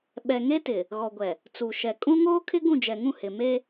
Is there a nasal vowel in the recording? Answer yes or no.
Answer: yes